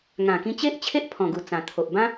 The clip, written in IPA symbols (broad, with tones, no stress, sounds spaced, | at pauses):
ŋ ã˨˩ k ĩ˧ t͡ɕ e˦ ʔ t͡ɕʰ e˦ ʔ pʰ ɔ̃˨˩ ɡ u˨˩ t͡s ã˨˩ t̪ʰ o˨ ʔ b ã˦